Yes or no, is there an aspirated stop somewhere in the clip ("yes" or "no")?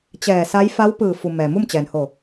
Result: no